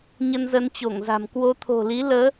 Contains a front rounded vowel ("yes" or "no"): no